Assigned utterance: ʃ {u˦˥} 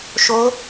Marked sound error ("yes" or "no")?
yes